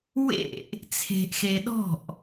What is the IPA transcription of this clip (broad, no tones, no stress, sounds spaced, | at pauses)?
w ḛ ʔ | t͡sʰ e̤ ʔ x e ɗ ɔ̤ ʔ